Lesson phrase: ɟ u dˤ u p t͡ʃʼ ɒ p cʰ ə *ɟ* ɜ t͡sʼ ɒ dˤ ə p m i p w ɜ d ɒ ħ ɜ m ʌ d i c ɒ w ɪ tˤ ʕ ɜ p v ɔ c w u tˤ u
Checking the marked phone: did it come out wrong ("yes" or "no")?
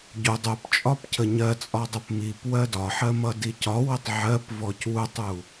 yes